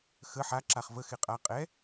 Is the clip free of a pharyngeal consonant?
no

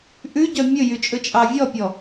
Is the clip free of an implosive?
yes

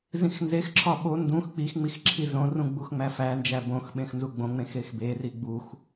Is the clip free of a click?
no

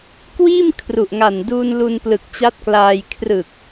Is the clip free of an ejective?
yes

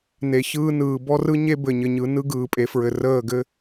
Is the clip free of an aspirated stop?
yes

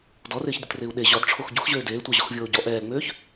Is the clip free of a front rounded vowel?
no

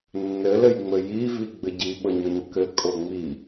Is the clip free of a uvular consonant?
yes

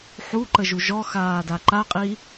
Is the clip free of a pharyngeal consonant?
no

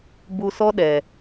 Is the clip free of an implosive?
no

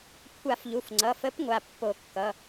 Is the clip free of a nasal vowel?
yes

